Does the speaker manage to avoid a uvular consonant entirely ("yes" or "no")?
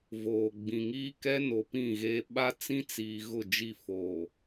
yes